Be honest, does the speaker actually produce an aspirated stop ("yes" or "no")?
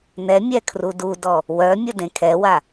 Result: yes